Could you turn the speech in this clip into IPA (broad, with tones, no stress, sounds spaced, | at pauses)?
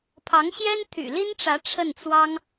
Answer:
pʰ ɑ˧˥ ŋ ɕ j ɛ˥ n t̪ʰ y̰˨˩ l i˥ n ʈ͡ʂ ä˧˥ ʈ͡ʂʰ ə˥˩ n t͡s w ɑ˥ ŋ